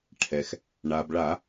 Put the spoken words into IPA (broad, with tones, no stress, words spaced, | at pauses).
ʈʰɛ˩x | ɳa˩bɭa˧˩˧